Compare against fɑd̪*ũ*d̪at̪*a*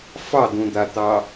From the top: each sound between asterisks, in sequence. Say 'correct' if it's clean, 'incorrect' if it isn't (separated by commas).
correct, incorrect